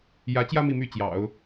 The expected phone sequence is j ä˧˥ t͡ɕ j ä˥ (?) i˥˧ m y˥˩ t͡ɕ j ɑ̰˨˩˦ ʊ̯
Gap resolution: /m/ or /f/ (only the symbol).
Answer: m